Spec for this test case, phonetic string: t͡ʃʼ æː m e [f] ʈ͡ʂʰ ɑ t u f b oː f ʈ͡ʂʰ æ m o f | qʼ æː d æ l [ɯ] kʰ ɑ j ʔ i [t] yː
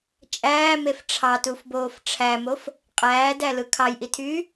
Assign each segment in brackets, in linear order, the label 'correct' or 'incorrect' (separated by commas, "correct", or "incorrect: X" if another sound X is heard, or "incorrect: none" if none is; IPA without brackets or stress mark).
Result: correct, correct, incorrect: tʰ